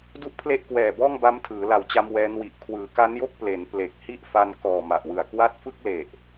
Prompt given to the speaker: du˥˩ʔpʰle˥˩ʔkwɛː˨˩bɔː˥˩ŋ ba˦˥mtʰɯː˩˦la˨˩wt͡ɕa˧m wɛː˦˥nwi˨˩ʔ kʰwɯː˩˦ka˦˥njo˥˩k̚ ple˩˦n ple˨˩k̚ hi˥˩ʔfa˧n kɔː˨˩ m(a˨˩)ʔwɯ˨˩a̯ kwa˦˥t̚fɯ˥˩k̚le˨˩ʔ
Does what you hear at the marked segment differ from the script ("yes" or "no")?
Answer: no